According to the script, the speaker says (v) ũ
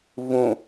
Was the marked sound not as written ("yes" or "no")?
no